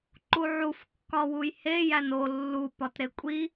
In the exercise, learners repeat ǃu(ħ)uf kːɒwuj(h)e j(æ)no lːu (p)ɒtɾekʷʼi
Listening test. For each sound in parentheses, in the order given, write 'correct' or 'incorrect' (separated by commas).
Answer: incorrect, correct, correct, correct